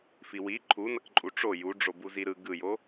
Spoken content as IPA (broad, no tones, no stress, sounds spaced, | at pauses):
f i w i ǃʰ u n ʌ k ǃʼ u ʈ͡ʂ o j u ɖ͡ʐ o b u z i ɾ ɯ ɡ ɯ j o